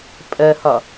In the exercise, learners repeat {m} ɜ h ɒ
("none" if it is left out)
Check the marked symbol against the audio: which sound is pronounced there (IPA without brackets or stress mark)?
pʼ